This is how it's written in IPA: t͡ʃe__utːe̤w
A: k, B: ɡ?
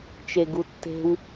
B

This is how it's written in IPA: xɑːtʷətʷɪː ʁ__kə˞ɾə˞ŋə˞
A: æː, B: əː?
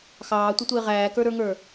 A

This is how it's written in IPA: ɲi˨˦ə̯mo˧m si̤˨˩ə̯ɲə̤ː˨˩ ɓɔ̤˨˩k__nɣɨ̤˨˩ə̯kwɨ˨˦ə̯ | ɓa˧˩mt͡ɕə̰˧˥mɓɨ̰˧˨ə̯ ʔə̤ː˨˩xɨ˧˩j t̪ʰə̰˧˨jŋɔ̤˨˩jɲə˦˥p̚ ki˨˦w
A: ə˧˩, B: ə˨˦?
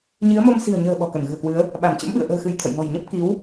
A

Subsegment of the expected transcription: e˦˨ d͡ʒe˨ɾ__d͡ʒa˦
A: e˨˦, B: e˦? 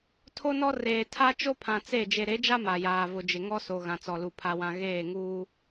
A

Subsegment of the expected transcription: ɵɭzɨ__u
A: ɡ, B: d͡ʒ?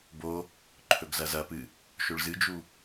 B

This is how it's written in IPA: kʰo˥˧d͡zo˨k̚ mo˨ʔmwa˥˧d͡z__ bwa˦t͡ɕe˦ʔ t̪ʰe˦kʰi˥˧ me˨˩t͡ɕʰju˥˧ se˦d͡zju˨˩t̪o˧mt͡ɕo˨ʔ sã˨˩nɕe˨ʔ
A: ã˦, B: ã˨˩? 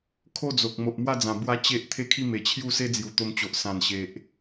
B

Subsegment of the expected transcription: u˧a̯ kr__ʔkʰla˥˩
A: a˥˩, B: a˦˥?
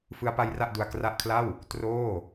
B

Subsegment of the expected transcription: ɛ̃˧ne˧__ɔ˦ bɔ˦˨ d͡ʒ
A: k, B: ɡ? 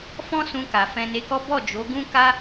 A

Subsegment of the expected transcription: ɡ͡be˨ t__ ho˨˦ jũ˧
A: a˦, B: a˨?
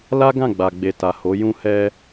B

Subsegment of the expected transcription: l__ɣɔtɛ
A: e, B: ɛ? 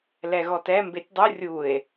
B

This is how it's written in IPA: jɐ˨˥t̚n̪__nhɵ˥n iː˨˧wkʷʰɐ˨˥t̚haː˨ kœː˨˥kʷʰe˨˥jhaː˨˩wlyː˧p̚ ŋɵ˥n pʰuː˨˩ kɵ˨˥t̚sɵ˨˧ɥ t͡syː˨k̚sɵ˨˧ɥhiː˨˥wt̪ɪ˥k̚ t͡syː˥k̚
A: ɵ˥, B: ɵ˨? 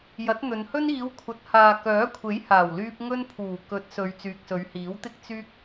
B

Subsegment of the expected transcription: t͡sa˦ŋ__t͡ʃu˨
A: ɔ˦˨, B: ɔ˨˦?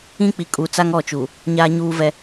A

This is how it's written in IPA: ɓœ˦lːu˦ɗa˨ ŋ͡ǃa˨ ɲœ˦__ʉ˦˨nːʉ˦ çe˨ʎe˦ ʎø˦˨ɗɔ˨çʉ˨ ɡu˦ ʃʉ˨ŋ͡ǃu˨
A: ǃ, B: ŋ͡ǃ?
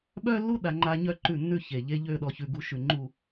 A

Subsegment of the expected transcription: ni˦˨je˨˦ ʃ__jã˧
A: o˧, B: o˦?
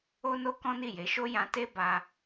B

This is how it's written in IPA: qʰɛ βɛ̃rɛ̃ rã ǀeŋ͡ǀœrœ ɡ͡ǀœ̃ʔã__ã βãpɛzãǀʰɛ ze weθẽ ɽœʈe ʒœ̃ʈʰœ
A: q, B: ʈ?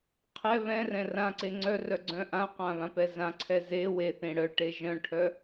A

